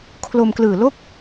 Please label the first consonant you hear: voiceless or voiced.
voiceless